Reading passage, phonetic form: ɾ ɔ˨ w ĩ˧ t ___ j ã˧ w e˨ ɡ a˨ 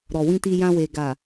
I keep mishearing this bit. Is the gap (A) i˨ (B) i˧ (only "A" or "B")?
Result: B